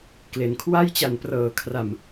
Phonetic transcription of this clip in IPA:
k l e˩˦ n kʰ w a˥˩ j t͡ɕ a˨˩ n p r ɤː˩˦ kʰ r a˨˩ m

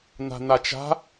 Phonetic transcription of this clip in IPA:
n̪ a̤ n̪ a t͡ʃ a̤

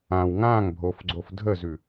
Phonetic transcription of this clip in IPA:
ã w ŋ ã ŋ bʱ o f ɡ͡ǀ o f dʱ ə z ʉ

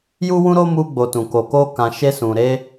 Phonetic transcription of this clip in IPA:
j u˦ w ũ˦ ɾ o˦ m u˧ ɡ͡b o˨ t ũ˨ k o˨ k o˧ k ã˧ ʃ e˧ s ũ˨ ɾ e˧

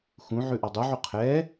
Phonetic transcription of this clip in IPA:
x ũ ʕ ʉ ʔ ɒ dˤ u ʕ u qʰ ɛ

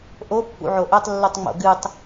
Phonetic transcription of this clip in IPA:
ʔ o pː ṵ ʕ o ʔ ɵ tˤ lː ʉ tˤ ŋ͡m o̰ ɡ ɨ tˤ

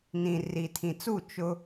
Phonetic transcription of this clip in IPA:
n ĩ˨ r i˨ tʰ ĩ˨ t͡s u˦˨ t͡ʃ ʊ˦

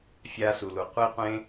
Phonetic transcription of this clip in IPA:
fʲ a˧ s u˨ l u˨ qʷ i˧ qʷ ẽ˧

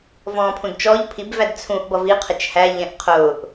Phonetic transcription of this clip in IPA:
v ɔ̃ː pʰ ũ d t͡ʃ ɔ ʎ pʰ i b v æ d t͡sʰ ũ ʔ b ʌ v i qʰ ɪ t͡ʃ h æ ʎ ɛ̃ ʔ qʰ ʊː ʔ

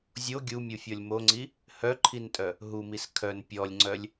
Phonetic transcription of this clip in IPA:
zʲ o ɡʲ u mʲ u fʲ ɔ lʲ m o ŋ͡ǀ i | h œ ǃʰ i n tʼ œ | ɦ u m i s kʰ œ n pʲ ɔ lʲ ŋ͡ǀ œ lʲ

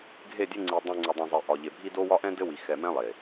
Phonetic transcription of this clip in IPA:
ɡʱ e˦˨ dʲ ɘ˦ ŋ͡ǀ i˨ dˤ ẽ˨ ŋ͡ǀ u˨ dˤ ɛ̃˨ zˤ e˨ ʔ ɒ˨ ʎ e˨ bʱ i˦ d o˦ w ɒ˦ ʔ ɛ̃˦ d ɘ˦ w i˨ x ɛ˨ m ɛ̃˦ lˠ e˨

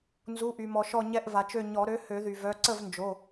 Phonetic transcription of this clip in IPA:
n z u˩˧˩ ʔ y˩ m ɔ˩ ʃ ɔ˧˩ ɲ ɛ˧˩ ʔ v a˩ t͡ʃ ø˧˩ ɲ ɔ˨˩˦ ɾ ø˩˥ h ø˨˩˦ ð y˩ v œ˩˧˩ ǀ ə˥˩ v n d͡ʒ o˩˧˩

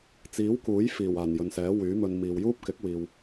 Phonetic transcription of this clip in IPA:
t͡s iː˨˥ w k uː˨˥ j f iː˨˩ w aː˨˩ n j ɵ˨ n s ɛː˨˥ w yː˨˥ m ɵ˧ n m iː˨ w j uː˥ p̚ k ɪ˨˥ k̚ w iː˧ w

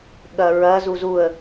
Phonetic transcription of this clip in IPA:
ɠ ɐ ɹ ɐ z u z u ə̯

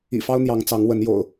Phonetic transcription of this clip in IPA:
ḭ˨˩ f ɑ˦ ʊ̯ n̪ j ɑ˨˦ ŋ t͡s ɑ˨˦ ŋ w ə˨˦ n j o̰˨˩ ʊ̯

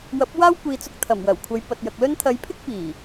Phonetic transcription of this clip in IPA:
w ɐ˨˥ p̚ w aː˥ w kʷ iː˨ t͡s ʊ˧ k̚ t̪ʰ ɐ˨˩ m w ɐ˨˩ w kʷʰ ɐ˨˧ j p ɐ˨ t̚ j ɐ˨ k̚ l ɵ˥ n t̪ʰ ɐ˨˧ j pʰ ɪ˥ k̚ p iː˨˩

